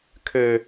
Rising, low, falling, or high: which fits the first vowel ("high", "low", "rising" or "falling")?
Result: high